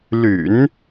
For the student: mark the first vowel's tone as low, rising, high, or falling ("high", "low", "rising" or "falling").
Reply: low